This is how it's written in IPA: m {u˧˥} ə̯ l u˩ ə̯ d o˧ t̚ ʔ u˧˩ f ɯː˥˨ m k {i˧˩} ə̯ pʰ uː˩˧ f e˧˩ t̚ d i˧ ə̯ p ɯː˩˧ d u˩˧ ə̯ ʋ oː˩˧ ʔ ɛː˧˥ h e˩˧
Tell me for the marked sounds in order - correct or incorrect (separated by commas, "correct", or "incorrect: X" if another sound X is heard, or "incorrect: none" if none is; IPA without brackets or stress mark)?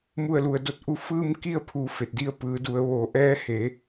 incorrect: u˧˩, incorrect: i˥˨